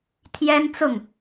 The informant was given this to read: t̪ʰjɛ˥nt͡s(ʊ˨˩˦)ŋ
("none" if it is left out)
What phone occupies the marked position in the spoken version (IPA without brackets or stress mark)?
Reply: ʊ˥˩